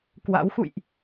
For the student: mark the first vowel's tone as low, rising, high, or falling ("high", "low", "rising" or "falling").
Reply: rising